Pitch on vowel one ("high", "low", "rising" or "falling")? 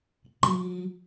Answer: low